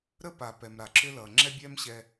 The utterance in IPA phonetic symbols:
ɾə˥pa˩ pɛ˩mɾa˩ǁʏ˥lʌ˩ ŋ͡ǁɛ˥bʲɛ˥mɕɛ˧

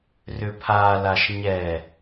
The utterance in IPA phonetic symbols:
rʏpʰalaʃ ɲɛ

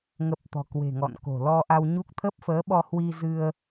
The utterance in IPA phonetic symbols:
ŋə˨˩p̚ t̪ɔ̤˨˩kwe̤˨˩ŋɔ̰˧˨nko̤˨˩ lɔ˧ʔa˧wɲu˦˥k̚ t̪ʰə˦˥p̚fəː˨˦ɓɔ˧ hwi˧zɨ˧ə̯

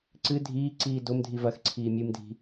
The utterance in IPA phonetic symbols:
ǀɨ dʱiːǀiː domdʱi vɐxǀʰiː mʲɨmdʱi̤

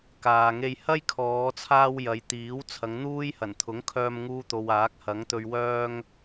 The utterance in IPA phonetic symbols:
kaː˨ŋe˧j hɐ˥jkʰɔː˨˧t͡sʰaː˧w jɐ˨˧jt̪iː˨˥w t͡sʰɐ˨˧ŋn̪uː˥jhɐ˨˩n t̪ʰʊ˨˥ŋkʰœː˧mŋuː˧t̪o˨w aː˨˥k̚hɐ˨˥ŋt̪ɵ˧ɥ wœː˧ŋ

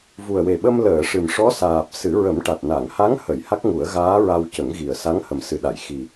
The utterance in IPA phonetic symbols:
vu˨˩ə̯we˨˩ɓə˧m ləː˨˩˨ʂɨ˨˩mʂɔ˧˥saː˨˩p̚ sɨ˨˩˦ɹə˨˩˦mʈa˨˩t̚ na˨˩˨ŋ ha˧˥ŋhə˨˩˨j ha˦˥k̚ŋu˨˩˦ə̯ɣaː˧˥ ɹa˧w cə˨˩˦ŋɣi˨˩ə̯sa˧˥ŋ hə˨˩msɨ˨˩ɗa˨˩˨j xi˨˩

